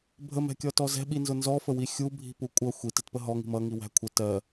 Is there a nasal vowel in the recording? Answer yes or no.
no